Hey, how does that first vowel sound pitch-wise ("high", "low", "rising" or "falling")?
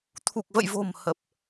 low